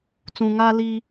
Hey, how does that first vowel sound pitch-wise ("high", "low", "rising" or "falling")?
low